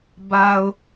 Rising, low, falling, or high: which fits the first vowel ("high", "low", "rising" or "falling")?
low